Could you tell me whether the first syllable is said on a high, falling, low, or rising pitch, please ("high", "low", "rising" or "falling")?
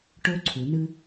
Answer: rising